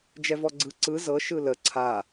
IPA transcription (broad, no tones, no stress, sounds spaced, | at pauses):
d͡ʒ ɛ v ɔ ɡ͡ǀ ɯ ǀ ɯ z ɤ ʃ ɯ l ə ǀʰ a